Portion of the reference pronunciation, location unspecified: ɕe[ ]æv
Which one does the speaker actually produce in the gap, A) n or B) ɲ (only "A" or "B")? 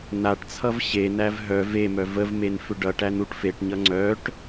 A